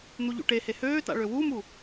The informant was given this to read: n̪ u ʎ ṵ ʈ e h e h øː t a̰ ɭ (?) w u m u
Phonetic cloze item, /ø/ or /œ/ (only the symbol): ø